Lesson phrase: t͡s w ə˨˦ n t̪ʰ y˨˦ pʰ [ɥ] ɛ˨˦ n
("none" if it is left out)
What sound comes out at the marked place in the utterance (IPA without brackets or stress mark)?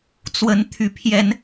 j